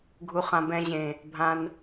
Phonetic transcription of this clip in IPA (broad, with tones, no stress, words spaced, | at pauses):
ɡʱu˧χã˧ bɛ̃˧ʑẽ˨ | bʱã˧n